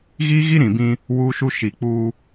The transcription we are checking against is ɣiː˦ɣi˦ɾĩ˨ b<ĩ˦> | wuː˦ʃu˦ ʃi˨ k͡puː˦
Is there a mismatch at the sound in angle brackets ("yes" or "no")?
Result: no